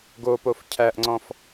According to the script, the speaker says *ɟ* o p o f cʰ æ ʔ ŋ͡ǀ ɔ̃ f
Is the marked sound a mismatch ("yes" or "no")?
yes